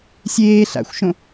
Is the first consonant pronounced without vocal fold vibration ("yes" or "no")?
yes